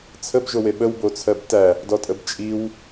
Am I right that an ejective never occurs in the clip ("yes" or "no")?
no